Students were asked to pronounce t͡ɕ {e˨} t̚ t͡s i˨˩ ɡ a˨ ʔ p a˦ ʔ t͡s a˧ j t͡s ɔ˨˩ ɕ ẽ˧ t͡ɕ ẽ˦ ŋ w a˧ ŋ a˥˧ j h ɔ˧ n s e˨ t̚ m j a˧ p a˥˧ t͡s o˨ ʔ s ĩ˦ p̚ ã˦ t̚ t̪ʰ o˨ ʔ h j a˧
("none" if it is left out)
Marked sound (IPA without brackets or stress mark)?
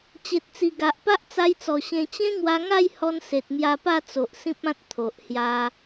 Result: e˨